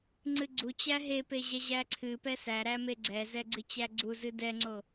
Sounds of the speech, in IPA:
ŋ͡ǀ ɨ ɡ͡ǀ u t͡ɕ æ ɦ e p e ʑ ɛ ʑ æ ǀʰ ɨ p ɛ s æ ɾ æ m e ɡ͡ǀ ɛ z ɛ ɡ͡ǀ ɨ t͡ɕ æ ɡ͡ǀ u z ɨ d ɛ ŋ͡ǀ o

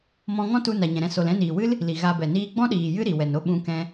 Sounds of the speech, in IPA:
m ɔ̃˧ ŋ ɔ̃˦ t u˧ n a˨ ɲ ɛ̃˨ ɾ ɛ̃˧ s o˨ l ɛ̃˧ n iː˨ w ɨ˦ l | l i˨ ɣ a˧ b ɛ˨ n iː˦ ɡ͡b ɔ̃˦ ɗ iː˨ j ɨ˦ ɾ i˨ w ɛ˨ n o˦ ɓ ũ˧ k ɛ̃˧

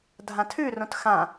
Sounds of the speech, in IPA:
dʱ ã tʰ ʉ r õ t x ã

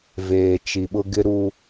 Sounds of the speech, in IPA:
v eː˨ t͡ʃ i˨ ɓ ʊ˨ ɡ ɪ˦ ɾ u˦

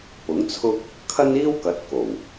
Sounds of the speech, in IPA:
p ʊ˨˥ ŋ t͡sʰ ʊ˥ k̚ | kʰ ɐ˥ n iː˥ w k ɐ˨˥ t̚ k o˨˩ w

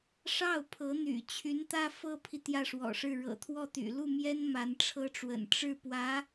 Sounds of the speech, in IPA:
ʂ ɑ˥˩ ʊ̯ pʰ ɤ˧˥ n̪ y̰˨˩ t͡ɕʰ y˧˥ n t̪ ä˥ f ɤ˥ pʰ i˨ t̪ j ä˥˩ ʂ w ɔ̰˨˩ ʂ ɻ̩˥˩ ɻ ɤ̰˨˩ t̪ʰ w ɔ˥˩ t̪ y̰˨˩ l u˥˩ m j ɛ˥ n m a˧˥ n ʈ͡ʂʰ ɤ˥ ʈ͡ʂ w ə̰˨˩ n ʈ͡ʂ ɻ̩˥˩ p w ä˧˥

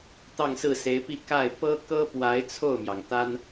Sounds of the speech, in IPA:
t̪ ɑ˥˧ ŋ s ɹ̩˥˩ s e˧˥ ɪ̯ p i˥˧ k a˥˩ ɪ̯ p ɤ˥ k ɤ˥ p w a˧˥ ɪ̯ t͡sʰ o˥˩ ʊ̯ m j ɑ˩ ŋ t̪ a˥ n

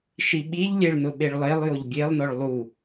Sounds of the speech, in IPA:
ʃ i ɓ i ʎ lʲ e ɭ n ʊ ɓ e ɭ lˠ e lˠ j o ʎ bʲ e lˠ n ɔ ɭ lˠ u

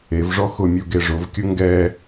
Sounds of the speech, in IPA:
e v ʐ ɔ x ʊ mʲ u ɡ e ʐ ʊ v kʲ ʊ ŋ ɡ ɛ

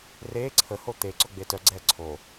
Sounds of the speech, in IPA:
r e ǀʰ ə h o t̪ e ǀ ʊ ɡ͡b e t œ ɡ͡ǀ ɛː ǀʰ o

